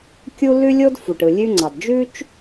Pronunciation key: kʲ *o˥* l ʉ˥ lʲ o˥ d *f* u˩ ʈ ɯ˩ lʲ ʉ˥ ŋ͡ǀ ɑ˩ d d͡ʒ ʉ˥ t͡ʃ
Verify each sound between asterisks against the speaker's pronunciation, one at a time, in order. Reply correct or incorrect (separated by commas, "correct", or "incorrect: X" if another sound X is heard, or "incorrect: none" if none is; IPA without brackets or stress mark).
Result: incorrect: u˥, correct